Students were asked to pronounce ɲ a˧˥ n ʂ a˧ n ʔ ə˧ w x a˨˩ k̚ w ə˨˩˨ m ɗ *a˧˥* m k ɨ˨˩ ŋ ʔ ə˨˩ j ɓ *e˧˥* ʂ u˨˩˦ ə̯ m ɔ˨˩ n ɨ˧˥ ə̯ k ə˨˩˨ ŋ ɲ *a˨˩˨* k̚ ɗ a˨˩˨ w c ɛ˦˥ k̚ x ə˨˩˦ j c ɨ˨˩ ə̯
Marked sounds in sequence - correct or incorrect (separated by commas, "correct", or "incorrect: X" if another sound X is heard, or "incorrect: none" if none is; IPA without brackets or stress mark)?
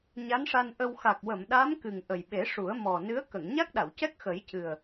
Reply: correct, incorrect: e˨˩˦, incorrect: a˦˥